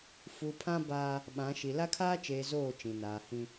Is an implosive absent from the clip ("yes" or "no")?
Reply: no